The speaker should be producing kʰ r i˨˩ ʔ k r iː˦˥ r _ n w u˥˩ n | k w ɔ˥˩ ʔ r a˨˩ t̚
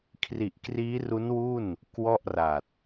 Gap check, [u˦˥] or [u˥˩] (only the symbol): u˦˥